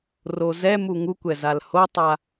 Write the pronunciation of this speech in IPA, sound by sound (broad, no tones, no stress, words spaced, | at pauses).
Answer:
rozɛmu ŋukʷɛ zalhotˤa